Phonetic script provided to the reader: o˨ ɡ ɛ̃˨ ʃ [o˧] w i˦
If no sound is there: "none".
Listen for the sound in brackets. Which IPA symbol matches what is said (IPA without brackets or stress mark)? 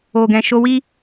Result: o˧